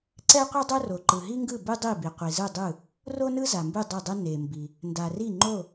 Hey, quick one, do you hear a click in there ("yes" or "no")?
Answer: yes